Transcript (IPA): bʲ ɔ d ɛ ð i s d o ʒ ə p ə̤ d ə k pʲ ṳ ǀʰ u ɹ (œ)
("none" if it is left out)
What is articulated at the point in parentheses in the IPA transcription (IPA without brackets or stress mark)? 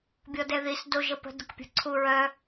œ